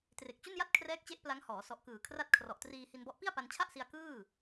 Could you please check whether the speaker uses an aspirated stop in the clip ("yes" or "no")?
yes